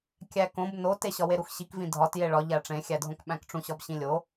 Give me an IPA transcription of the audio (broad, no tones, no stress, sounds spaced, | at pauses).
kʲ æ k õ b n o t e ɕ ɒ w e ɾ u x ɕ i k v ĩ dʱ ɒ t j e ɭ ɒ ʎ æ ʈ͡ʂ ẽ xʲ æ dʱ õ k ɓ æ̃ k ʈ͡ʂ ũ ɕ ɒ b ɕ ĩ lʲ o